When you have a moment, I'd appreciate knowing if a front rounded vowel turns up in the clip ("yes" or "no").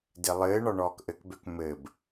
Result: yes